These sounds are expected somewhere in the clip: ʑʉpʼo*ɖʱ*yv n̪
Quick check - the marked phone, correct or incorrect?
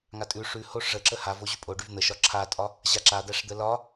incorrect